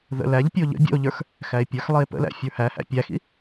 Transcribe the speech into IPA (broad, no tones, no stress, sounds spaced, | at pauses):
ð ə̰ l æ ʎ pʲ ə o̯ ʎ ə̰ bʲ ə̰ o̯ ʎ ə˞ x | x æ e̯ pʲ ə˞ x lˠ i e̯ p ə̰ l æ̰ fʲ ə˞ h æ h æ̰ pʲ æ x ḭ